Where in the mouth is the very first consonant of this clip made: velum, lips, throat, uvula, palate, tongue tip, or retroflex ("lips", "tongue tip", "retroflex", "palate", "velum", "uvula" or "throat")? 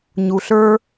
palate